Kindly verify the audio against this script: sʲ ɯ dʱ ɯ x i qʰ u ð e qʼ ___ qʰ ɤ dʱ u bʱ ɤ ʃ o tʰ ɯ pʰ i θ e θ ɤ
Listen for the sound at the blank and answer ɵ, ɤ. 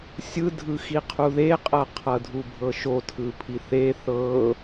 ɤ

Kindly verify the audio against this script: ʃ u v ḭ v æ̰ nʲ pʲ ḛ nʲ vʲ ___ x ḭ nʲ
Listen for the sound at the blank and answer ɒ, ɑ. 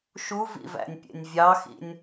ɑ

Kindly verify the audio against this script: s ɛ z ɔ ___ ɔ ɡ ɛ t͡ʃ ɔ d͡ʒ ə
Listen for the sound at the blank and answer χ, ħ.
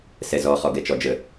χ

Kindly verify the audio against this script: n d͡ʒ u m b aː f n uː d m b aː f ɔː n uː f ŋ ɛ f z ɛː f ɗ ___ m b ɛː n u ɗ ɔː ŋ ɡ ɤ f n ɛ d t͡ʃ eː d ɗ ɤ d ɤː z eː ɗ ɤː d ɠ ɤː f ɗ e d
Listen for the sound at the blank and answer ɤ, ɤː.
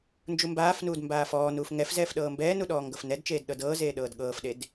ɤː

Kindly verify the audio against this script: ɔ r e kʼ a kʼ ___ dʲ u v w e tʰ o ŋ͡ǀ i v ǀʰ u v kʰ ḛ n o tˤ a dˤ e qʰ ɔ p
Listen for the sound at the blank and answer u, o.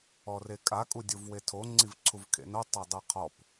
u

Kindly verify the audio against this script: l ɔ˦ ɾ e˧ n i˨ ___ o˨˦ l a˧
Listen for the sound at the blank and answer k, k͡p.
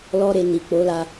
k͡p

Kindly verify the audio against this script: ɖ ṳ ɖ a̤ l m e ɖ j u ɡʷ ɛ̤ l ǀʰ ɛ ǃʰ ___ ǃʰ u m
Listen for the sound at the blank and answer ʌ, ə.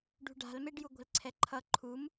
ʌ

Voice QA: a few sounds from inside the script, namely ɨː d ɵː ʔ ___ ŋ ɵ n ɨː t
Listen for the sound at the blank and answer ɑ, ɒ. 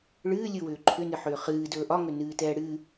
ɒ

